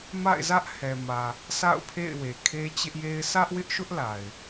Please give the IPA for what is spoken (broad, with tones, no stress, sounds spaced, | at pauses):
m a̰˦˨ ɪ̯ z ä˦ ʔ h ɛ˨ m ä˨ | sʰ a̰˦˨ ʊ̯ pʰ ḛ˦˨ ɪ̯ w e˨ kʰ e˦ t͡ɕ ɪ˦ ʔ j e˦ ɪ̯ s ä˦ ʔ w ɪ˦ ʔ ʃ ʊ˦ ʔ l a˨ ɪ̯